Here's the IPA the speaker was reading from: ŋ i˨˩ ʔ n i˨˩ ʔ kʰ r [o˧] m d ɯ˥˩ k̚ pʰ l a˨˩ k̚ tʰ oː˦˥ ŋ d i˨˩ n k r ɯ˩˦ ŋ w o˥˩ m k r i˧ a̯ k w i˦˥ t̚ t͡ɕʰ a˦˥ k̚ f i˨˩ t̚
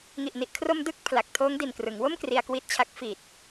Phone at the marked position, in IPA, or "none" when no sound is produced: o˧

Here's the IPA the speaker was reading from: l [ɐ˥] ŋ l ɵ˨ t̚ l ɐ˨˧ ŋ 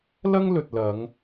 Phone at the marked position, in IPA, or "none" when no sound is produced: ɐ˥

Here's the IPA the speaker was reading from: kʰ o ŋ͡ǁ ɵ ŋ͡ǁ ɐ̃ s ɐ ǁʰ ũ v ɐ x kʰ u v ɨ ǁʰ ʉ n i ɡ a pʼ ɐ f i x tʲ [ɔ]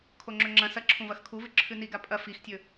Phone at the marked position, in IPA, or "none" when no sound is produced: ɵ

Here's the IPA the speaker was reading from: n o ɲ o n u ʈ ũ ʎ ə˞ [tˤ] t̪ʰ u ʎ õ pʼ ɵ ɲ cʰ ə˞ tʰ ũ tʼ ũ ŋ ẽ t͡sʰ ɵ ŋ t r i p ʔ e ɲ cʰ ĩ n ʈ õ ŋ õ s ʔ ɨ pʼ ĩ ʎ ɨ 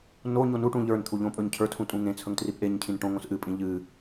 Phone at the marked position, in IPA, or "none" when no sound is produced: n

